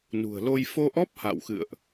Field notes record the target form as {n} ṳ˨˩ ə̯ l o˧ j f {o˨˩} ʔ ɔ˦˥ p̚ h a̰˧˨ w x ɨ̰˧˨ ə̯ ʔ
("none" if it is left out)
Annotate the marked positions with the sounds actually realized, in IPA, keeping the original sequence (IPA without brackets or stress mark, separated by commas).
n, o˧